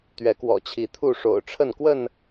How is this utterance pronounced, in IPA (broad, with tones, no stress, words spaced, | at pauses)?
t̪ɥɛ˨˦kwɔ̰˨˩t͡ɕʰi˨˦ t̪ʰu˥˨ ʂo̰˨˩ʊ̯ʈ͡ʂʰə˥˨n kwə˥˨n